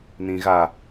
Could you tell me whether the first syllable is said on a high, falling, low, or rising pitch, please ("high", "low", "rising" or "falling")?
low